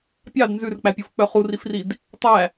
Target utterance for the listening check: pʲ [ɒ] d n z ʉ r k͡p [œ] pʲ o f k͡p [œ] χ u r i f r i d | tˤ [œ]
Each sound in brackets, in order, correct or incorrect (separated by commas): incorrect, incorrect, correct, incorrect